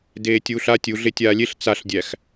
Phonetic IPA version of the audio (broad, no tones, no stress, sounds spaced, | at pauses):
d eː tʲ uː ɬ a tʲ u ɮ e tʲ aː lʲ e ɬ t͡s a ɬ dʲ æ x